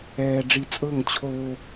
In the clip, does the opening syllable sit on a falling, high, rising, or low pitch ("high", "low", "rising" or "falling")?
low